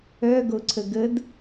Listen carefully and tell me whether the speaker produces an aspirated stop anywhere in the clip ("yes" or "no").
yes